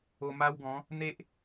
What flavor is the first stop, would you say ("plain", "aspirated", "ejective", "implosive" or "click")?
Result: plain